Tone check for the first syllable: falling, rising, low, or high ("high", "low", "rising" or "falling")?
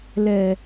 low